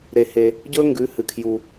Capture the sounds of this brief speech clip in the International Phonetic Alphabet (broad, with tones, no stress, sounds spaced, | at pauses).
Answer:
ɾ e˩ h e˩ | ɟ ɵ˥ ŋ ɡ ʉ˩˥ h ɨ˩ kʰ j u˩